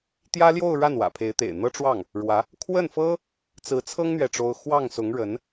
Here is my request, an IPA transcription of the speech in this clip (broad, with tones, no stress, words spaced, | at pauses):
t̪jä˥ljo˥˧ʊ̯ ɻa˥˩nwä̰˨˩pʰe˧˥ɪ̯t̪ḛ˨˩ɪ̯ n̪ɤ˥ʈ͡ʂwɑ˥˩ŋ | ɻwä˧˥ | kʰwə˥˩nfɤ˥ | t͡sɹ̩˧˥t͡sʰɤ˥ŋ n̪ɥɛ˥˩ʈ͡ʂo˥ʊ̯ xwɑ˥˩ŋsʊ˧˥ŋ ɻə˧˥n